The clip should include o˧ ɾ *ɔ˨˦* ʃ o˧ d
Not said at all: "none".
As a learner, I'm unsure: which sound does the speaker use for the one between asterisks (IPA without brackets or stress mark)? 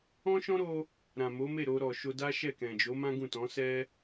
ɔ˨